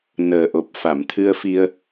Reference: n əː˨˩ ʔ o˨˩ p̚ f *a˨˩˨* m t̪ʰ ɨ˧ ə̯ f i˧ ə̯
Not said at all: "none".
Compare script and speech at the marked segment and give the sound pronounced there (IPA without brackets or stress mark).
a˨˩˨